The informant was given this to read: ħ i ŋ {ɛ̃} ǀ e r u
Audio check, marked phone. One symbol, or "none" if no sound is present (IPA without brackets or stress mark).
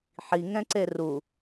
ɛ̃